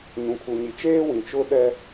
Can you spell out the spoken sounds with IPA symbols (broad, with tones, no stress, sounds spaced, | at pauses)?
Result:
ɲ ũ˨ kʰ u˨ ɲ i˨ t͡ʃ eː˦ w ĩ˨ t͡ʃ ʊ˦ ɗ ɛ˦